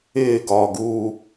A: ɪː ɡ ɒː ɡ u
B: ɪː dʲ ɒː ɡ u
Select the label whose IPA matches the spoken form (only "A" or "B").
A